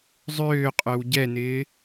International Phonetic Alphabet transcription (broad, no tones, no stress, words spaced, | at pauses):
zˤøːqʼœw ɟɛnɪː